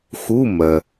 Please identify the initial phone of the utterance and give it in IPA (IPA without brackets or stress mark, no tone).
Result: x